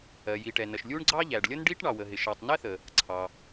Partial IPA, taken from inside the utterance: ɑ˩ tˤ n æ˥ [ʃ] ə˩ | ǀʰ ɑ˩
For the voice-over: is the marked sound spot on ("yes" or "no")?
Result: no